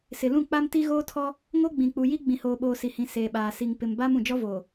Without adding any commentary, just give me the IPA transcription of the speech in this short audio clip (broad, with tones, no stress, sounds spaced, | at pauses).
s ɪ˨ l ũ˦˨ k͡p a˦ m t i˦ ɣ oː˦ tʰ ɔ˦ | ŋ o˦ ɡ͡b ĩ˨ k͡p u˨ j i˦ ɡ͡b ĩ˨ h oː˨ ɓ oː˨ s i˨ h ĩ˨ s eː˨ ɓ aː˨ s i˨ ŋ p ɪ˨ m b aː˦ m ũ˨ d͡ʒ ɔ˦ v oː˨